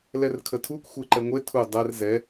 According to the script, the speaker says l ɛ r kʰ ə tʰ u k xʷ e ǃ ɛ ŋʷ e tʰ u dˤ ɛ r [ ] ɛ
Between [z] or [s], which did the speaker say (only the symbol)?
z